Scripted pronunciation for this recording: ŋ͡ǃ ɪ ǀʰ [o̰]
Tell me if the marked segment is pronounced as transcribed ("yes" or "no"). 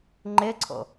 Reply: yes